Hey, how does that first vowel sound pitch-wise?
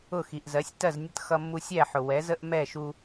falling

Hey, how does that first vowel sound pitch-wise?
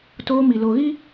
high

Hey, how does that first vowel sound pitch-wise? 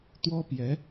high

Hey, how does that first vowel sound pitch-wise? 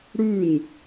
falling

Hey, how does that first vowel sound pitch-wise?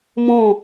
falling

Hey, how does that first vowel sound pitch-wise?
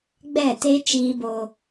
falling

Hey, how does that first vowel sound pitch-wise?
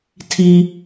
low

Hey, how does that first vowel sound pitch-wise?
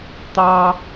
high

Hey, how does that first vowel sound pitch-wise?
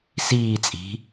falling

